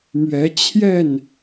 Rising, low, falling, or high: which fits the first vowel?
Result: rising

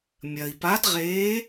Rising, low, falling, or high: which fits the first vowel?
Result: low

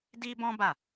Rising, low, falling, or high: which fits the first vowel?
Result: high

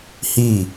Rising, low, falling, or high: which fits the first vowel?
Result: falling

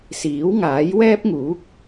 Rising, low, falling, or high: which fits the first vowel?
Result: rising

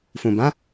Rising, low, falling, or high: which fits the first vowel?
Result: low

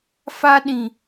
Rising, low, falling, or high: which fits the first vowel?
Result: high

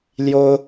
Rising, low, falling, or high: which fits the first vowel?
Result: high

